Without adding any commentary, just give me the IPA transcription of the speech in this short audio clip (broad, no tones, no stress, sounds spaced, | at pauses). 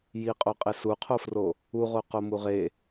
j i qʼ o qʼ e s u qʰ o f r o | u ʁ o q o m u ʁ e